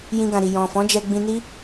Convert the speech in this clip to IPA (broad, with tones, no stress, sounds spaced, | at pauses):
j ĩ˧ ɡ ã˨ ɾ i˨ j ɔ̃˨ f ɔ̃˨˦ d͡ʒ ɛ˧ ɡ͡b ĩ˧ n i˦